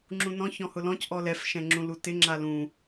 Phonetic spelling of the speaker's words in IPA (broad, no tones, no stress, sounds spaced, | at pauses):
ŋ͡ǁ ũ n ɔ̃ ç ɔ̃ h ʊ l ɔ̃ c ʔ ɔ l ɛ f ʃ ɛ̃ ŋ͡ǁ ũ l u t ɪ ŋ͡ǁ a l ũ